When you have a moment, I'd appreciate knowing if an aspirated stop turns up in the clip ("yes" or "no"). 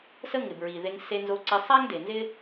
no